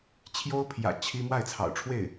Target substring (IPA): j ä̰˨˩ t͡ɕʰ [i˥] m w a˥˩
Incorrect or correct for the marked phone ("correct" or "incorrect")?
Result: correct